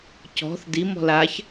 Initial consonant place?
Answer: palatal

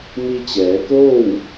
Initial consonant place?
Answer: labial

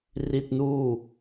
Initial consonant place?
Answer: alveolar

